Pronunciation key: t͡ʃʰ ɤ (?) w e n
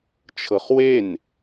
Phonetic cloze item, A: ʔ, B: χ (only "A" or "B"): B